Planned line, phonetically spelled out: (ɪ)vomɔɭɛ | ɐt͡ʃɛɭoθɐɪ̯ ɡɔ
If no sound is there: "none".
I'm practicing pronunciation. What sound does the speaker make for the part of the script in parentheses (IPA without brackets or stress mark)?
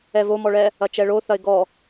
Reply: ɛ